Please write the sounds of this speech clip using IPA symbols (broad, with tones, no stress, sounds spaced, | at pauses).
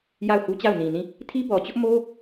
j a˦˨ ʊ̯ h u˦ t͡ɕ a˦˨ ʊ̯ n ĩ˨ n ĩ˦˨ | tʰ i˦ b ɔ˨ t͡ɕ ʊ˦ ʔ m o˦